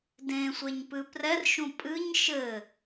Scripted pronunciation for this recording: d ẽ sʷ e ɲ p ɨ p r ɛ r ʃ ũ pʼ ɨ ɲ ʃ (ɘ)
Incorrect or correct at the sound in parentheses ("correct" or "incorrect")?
correct